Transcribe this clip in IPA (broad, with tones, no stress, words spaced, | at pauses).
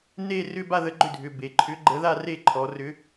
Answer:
ne˥˧ rʏ˥˧ba˥˧ ðə˨˥ɡ͡ǃʏ˥˩dʱʏ˩˧˩ be˩˧ǃʰʏ˨˥ɡ͡ǃə˨˥ ða˥˧re˥˩ ǃʰɔ˩˧ rʏ˨˥